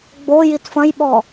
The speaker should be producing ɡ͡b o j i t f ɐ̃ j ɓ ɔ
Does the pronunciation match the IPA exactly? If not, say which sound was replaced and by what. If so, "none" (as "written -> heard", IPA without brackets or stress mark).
none